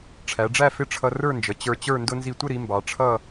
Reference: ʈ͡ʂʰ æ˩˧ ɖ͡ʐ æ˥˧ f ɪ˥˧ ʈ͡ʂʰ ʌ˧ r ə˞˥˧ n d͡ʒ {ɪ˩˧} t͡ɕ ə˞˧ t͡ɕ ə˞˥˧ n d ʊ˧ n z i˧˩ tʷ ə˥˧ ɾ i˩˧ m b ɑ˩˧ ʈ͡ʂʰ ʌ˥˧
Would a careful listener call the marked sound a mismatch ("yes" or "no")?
yes